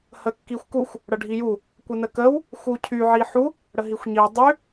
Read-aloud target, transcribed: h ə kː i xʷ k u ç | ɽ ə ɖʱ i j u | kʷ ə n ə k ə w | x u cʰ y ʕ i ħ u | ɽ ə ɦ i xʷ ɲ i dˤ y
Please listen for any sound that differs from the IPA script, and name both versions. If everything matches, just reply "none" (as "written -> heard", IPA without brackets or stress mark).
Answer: ç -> xʷ